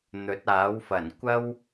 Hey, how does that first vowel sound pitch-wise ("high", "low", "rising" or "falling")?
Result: rising